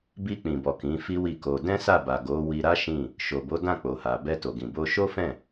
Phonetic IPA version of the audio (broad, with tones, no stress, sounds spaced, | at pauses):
b i˧ k͡p ĩ˨ b ɔ˨ k ĩ˨˦ f i˦ w i˦˨ k o˧ d ɛ̃˦ s a˦˨ b a˨ ɡ o˨˦ w i˧ ɾ a˦ ʃ ĩ˦˨ | ʃ o˨ b o˨˦ d ã˦˨ k͡p o˨ h a˨ b ɛ˧ t o˨ ɡ ĩ˨ b o˧ ʃ o˦ f ɛ̃˦˨